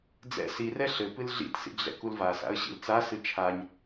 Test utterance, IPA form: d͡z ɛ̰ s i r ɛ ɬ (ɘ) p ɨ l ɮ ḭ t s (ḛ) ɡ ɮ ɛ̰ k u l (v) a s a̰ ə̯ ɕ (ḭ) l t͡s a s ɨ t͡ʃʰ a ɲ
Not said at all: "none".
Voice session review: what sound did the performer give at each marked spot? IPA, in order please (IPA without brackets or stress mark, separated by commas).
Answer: ɘ, ḭ, v, ḭ